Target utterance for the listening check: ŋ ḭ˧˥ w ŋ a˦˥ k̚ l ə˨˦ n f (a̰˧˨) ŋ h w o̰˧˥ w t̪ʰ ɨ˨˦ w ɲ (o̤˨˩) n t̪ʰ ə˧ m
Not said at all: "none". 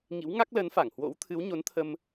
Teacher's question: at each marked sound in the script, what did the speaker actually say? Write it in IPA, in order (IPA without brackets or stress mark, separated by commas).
a˧˩, o˨˦